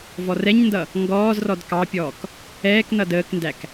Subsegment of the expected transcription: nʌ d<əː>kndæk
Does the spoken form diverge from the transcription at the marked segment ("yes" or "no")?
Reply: no